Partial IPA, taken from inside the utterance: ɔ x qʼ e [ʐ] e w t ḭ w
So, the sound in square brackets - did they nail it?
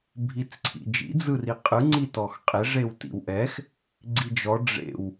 yes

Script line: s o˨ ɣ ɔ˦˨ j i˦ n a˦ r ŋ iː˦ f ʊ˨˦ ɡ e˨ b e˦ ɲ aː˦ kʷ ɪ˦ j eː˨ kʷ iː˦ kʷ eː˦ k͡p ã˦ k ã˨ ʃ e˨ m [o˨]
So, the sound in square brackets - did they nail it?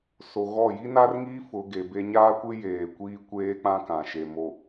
yes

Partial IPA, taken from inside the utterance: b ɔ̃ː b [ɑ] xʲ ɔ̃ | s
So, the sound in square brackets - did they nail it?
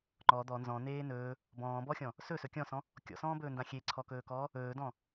no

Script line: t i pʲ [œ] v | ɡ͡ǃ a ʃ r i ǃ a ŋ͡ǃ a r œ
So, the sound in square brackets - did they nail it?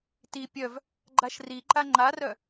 yes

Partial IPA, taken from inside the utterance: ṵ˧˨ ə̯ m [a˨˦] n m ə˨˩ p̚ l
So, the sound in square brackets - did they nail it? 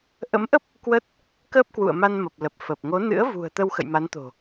no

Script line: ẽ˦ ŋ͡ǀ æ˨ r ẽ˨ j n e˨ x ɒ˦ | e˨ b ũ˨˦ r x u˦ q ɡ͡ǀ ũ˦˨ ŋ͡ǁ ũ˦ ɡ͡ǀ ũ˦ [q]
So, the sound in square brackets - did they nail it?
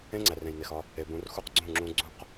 yes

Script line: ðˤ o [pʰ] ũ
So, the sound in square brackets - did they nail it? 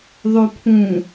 yes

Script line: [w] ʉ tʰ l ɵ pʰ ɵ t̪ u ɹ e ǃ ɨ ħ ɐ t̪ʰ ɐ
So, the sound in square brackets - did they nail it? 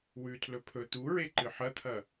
yes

